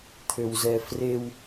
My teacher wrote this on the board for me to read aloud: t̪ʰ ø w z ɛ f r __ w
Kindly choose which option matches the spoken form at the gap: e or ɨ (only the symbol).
e